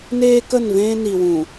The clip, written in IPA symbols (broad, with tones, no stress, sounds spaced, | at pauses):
n eː˦ k ə˦˨ n v ẽː˦ n i˨ w ũ˨